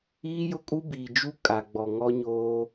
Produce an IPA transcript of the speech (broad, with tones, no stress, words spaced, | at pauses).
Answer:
iː˦jʊ˦kʼu˦ biː˨d͡ʒu˦ kʼa˨ɡ͡bɔ˨ ŋɔ˦ɲoː˦